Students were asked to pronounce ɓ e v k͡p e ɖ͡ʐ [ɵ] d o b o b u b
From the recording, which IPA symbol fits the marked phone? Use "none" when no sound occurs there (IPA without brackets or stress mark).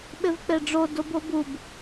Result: o